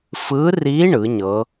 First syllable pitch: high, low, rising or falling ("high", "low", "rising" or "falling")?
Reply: rising